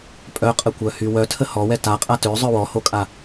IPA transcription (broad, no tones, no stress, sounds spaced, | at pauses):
pʼ œ qʼ ə kʷ œ h y w œ tʰ ə h ɔ w ɛ t a qʼ a t ø zˤ œ w ɔ h o kʼ a